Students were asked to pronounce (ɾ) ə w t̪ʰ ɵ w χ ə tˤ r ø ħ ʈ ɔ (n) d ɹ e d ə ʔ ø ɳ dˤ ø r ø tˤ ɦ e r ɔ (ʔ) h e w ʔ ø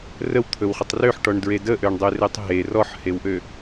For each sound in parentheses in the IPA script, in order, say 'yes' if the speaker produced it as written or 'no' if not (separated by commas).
no, no, no